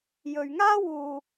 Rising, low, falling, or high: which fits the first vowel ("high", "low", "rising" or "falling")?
low